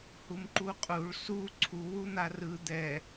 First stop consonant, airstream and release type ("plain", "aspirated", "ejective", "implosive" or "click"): click